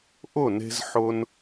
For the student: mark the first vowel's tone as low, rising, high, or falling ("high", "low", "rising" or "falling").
falling